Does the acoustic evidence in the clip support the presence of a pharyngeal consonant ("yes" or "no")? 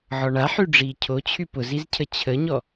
yes